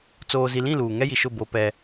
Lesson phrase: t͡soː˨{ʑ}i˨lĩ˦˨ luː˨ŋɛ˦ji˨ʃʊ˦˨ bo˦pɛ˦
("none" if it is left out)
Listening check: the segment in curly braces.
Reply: z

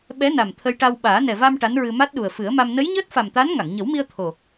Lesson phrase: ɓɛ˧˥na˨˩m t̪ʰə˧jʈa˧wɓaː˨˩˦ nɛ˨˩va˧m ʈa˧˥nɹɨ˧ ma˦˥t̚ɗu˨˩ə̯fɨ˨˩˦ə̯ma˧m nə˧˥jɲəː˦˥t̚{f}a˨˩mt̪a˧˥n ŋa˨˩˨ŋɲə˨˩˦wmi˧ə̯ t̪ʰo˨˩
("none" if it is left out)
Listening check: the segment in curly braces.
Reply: f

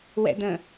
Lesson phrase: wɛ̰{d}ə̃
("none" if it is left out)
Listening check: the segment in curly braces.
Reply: d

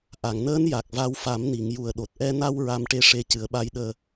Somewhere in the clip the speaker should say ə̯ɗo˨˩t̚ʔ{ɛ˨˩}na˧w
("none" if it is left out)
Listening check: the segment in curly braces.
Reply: ɛ˧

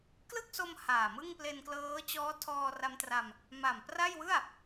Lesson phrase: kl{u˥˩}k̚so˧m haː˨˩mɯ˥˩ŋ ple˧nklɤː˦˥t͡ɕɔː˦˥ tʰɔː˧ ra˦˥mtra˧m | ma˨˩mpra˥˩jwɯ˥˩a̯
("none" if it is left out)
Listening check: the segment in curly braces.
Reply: ɯ˥˩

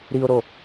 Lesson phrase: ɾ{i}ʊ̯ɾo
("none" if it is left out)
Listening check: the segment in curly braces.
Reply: i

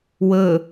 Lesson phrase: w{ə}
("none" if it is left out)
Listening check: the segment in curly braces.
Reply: ə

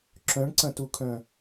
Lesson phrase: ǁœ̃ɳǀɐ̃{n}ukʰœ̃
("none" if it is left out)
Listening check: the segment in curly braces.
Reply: t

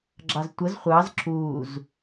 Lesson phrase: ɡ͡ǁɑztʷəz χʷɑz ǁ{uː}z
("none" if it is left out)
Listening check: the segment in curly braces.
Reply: uː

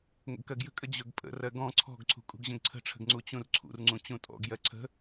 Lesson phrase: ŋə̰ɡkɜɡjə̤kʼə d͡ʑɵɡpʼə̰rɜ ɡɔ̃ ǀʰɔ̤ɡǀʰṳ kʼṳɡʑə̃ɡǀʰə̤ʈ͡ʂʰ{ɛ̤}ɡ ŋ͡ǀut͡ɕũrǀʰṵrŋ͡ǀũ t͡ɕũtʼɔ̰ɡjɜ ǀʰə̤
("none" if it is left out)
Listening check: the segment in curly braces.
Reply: ə̤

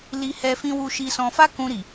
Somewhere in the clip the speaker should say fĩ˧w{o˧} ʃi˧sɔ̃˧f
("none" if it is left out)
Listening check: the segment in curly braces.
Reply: u˧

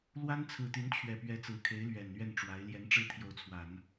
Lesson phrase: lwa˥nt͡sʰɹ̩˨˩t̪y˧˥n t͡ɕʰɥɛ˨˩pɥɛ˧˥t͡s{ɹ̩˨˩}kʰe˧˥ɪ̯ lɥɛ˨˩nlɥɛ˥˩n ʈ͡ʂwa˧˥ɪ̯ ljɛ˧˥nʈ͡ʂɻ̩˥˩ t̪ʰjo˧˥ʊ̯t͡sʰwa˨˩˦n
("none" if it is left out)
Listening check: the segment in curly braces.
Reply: ɹ̩˨˩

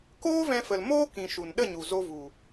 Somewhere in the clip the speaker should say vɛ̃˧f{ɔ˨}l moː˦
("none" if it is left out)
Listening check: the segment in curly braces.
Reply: ə˨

